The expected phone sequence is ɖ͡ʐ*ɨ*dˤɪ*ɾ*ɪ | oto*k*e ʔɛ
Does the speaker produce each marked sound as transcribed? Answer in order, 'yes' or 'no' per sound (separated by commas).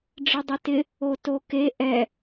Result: yes, no, yes